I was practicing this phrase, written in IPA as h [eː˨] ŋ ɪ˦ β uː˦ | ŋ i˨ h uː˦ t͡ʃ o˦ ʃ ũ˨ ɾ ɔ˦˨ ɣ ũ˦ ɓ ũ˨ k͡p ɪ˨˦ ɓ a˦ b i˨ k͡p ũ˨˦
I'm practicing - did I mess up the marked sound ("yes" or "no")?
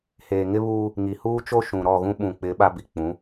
no